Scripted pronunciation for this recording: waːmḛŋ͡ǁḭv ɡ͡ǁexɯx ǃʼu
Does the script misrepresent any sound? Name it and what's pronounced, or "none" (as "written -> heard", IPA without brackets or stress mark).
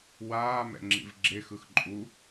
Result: ḛ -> ɛ̰